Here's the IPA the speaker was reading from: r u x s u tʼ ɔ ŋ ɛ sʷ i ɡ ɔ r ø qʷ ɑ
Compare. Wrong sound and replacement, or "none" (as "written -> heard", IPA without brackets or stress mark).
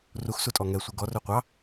none